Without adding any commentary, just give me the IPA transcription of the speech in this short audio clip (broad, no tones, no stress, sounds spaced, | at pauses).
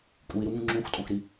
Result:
kʼ u i̯ ɾ u ŋ ũ ŋ͡ǁ ũ x tʼ õ x ɾ i